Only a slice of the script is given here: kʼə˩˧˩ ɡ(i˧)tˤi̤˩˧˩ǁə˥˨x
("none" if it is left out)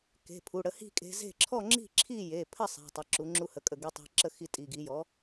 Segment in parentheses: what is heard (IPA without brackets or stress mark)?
i˧